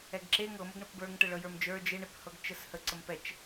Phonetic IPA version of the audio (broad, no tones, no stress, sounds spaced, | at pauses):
ɛ ɡ ǁ e ŋ ɤ m ə ɡ ɳ ə p b ə˞ ŋ ʈ ə ɭ ɤ j ə˞ m d͡ʒ ə˞ d͡ʒ e ɳ e p h ɤ ɡ t͡ʃ ə s h ə ǀ ə m p ɛ t͡ʃ